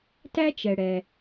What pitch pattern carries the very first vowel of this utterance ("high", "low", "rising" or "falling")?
high